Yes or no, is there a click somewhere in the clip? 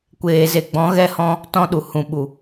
no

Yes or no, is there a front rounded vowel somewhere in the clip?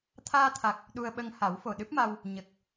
no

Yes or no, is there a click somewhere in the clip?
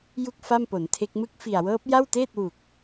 no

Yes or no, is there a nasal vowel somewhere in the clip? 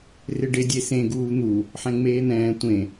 yes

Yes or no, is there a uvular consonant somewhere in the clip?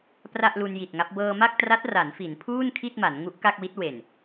no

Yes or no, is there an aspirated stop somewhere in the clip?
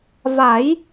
no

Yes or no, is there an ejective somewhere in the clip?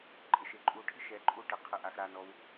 yes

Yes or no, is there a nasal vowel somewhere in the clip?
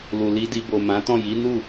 yes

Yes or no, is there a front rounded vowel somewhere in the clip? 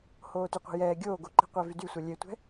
yes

